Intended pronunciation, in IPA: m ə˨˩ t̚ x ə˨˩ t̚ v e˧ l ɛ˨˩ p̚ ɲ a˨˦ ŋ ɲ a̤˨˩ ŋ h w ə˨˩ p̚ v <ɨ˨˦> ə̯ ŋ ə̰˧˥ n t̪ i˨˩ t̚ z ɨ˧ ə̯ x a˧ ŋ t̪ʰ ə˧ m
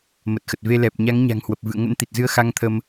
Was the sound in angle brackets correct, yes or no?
no